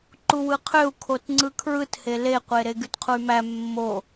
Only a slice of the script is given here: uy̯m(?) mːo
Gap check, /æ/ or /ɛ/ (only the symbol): æ